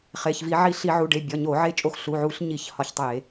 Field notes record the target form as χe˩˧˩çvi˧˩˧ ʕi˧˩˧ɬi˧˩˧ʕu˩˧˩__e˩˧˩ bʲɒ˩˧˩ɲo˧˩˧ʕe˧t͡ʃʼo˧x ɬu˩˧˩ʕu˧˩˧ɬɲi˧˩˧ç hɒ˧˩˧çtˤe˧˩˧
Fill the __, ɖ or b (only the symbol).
ɖ